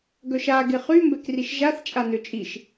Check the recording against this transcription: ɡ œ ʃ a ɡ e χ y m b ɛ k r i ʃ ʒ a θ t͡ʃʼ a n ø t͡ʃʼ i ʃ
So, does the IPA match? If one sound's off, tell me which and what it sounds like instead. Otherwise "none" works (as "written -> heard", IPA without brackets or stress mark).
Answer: none